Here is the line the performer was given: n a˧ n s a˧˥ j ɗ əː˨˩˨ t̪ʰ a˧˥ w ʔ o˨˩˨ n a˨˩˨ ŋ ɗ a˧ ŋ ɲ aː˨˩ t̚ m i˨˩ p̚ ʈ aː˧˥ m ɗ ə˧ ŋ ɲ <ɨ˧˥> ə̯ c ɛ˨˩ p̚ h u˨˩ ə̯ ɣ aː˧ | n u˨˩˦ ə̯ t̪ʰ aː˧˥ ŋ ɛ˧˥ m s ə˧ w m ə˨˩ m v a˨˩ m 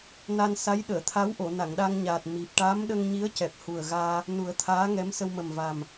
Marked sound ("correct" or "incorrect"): incorrect